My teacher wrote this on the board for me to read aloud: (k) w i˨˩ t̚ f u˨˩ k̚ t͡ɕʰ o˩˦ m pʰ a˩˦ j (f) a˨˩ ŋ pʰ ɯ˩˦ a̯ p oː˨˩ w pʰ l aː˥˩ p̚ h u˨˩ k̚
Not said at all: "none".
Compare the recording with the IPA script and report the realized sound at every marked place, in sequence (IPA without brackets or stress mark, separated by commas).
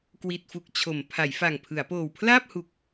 k, f